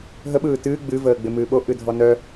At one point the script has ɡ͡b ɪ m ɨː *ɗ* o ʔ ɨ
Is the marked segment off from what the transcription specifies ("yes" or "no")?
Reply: yes